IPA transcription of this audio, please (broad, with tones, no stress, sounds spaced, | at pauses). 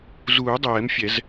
z uː˨˩˦ dˤ ɛː˨˩˦ m fʲ ɛ˨˩˦ z